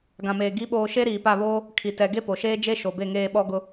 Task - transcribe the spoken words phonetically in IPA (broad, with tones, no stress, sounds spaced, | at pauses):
ɡ ã˨ m eː˨ ɡ i˨˦ ɓ oː˨ ʃ e˦ ɾ iː˨ p a˦˨ β oː˦ | kʰ i˨ t ɛ˨ ɡ e˦ p o˨ ʃ eː˦ d͡ʒ e˦ ʃ o˨ b e˦˨ ŋ eː˦˨ ɓ ɔ˦ ɡ ʊ˦